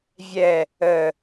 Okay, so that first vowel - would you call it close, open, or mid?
mid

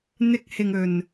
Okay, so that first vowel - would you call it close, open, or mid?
close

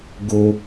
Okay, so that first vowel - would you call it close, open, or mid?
mid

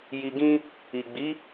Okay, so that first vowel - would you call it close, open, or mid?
close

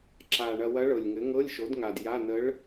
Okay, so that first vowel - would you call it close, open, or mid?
open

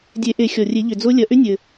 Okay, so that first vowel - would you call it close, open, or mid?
mid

